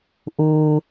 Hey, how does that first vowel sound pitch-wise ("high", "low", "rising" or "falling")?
low